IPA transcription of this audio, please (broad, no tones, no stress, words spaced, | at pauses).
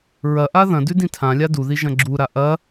ɹɐʔa ðɐ̃dʉ dĩtʰãlʲa duði ʒɐ̃ɡ͡ǁuɾa ʔɐ